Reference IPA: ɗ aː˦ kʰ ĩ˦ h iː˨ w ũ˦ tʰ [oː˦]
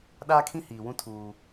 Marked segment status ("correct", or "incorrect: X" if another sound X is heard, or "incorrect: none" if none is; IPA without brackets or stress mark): incorrect: uː˦